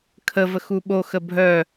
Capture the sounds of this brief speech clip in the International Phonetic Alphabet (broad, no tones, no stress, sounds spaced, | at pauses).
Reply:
kʰ ə v ə x u ɓ o x ə bʱ œ